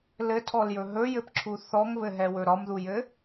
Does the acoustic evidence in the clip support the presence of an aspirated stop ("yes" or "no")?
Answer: yes